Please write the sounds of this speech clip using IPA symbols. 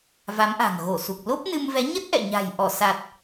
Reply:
va˨˦mʔa̤˨˩ŋɣo˧˩ su˨˩k̚ lo˦˥p̚nɨ˧mvɛ˨˦ ɲə˦˥t̚ʔɛ̰˧˨ɲa̤˨˩j ʔɔ˧˩sa˨˩t̚

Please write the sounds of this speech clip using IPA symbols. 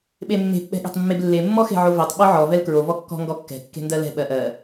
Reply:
ɓemːe̤p ɓɛ̤ɠe̤tˤmːeblːe mːɔxe̤ʕovetˤ ɓɔʕɔ vɛlkɹo vɔkːɔ̤ ŋɡɔkːɛ̤ kːe̤ndɜlɛ̤ ɓɜʔɜ

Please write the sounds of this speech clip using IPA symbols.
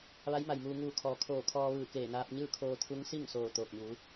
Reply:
ʋa˧˥jma˩jmuː˧ ŋuː˧˩ kʰɔː˩ kʰoː˧˩kʰɔː˧ ʋɯː˧˩keː˧˩naː˧p̚ ɲɯː˥˨kʰoː˧t̪ʰu˧˥ŋ si˥˨ŋsoː˧˩ t̪oː˧˩k̚ɲuː˩˧

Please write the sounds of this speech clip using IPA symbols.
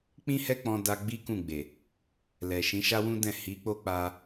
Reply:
k͡pĩ˦hɛ˦k͡pɔ̃˧da˧ ɡ͡bi˦kũ˦˨ɡ͡be˨ | lɛ˨ ʃĩ˨˦ʃa˦wũ˦dɛ̃˦˨ hi˨˦k͡po˦ k͡pa˦

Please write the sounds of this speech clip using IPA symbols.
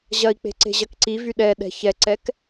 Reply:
ʑɐi̯k͡pe̤ ǀe̤ʑɐkǀivy ɗɛɗɛ̤ çɛǀɛk

